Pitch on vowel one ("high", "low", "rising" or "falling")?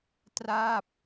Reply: falling